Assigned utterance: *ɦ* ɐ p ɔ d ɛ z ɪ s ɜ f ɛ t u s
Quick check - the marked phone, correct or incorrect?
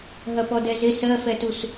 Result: correct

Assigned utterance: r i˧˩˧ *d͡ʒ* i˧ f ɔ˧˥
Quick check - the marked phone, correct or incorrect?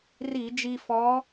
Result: correct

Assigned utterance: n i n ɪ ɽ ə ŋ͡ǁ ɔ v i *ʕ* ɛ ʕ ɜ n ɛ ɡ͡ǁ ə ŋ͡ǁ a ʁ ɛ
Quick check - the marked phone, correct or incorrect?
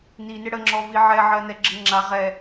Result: correct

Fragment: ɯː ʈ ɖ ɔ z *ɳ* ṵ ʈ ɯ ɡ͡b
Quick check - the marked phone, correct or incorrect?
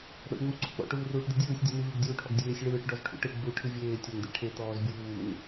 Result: incorrect: ʈʰ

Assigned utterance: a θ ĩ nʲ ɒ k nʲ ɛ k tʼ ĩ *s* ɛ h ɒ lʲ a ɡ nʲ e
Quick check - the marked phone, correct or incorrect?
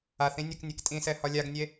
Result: correct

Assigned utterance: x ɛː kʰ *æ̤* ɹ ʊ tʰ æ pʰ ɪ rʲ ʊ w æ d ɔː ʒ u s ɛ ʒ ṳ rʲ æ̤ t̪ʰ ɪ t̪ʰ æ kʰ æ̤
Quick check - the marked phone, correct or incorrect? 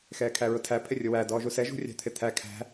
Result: incorrect: æ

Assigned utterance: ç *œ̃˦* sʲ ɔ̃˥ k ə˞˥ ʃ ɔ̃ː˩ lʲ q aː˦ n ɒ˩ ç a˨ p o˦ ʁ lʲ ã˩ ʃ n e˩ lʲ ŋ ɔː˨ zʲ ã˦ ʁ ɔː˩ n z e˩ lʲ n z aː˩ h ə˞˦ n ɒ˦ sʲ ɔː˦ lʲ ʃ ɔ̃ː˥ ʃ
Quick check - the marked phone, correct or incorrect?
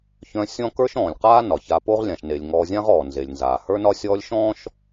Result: correct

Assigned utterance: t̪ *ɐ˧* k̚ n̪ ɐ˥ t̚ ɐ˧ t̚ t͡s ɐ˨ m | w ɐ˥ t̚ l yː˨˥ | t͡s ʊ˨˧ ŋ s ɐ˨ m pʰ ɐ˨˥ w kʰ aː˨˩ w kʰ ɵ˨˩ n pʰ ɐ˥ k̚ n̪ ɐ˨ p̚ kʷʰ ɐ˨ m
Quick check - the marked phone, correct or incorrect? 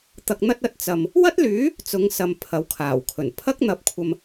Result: correct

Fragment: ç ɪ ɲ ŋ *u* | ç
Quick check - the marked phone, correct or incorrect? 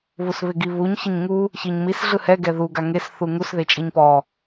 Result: correct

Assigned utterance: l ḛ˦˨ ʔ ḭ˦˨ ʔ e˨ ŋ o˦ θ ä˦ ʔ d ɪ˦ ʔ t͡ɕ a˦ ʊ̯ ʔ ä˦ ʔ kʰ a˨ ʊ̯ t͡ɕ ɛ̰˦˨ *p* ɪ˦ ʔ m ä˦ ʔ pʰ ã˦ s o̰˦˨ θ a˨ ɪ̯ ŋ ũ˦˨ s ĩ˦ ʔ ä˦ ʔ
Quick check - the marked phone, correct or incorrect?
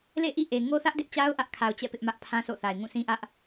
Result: correct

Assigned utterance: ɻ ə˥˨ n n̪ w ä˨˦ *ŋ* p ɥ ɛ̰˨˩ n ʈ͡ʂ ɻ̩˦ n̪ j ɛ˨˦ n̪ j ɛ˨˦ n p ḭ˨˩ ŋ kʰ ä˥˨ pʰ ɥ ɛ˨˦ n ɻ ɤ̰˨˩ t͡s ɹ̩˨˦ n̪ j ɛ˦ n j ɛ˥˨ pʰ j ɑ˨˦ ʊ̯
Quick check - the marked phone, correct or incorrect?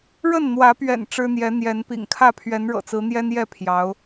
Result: incorrect: none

